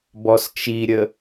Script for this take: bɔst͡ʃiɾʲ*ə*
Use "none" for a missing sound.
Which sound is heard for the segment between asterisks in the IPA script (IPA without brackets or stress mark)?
ə